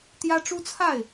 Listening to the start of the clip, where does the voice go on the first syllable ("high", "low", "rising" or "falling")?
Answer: high